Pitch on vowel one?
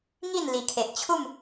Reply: falling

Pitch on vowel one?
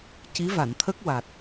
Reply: rising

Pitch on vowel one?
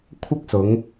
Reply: high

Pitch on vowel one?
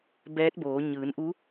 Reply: rising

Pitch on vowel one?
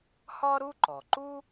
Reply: high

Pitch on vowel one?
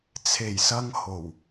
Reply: low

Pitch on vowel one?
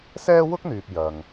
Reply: high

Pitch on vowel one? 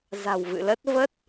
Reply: low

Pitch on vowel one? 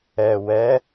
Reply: low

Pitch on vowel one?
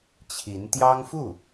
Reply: rising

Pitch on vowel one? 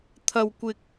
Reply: low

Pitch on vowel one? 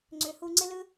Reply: low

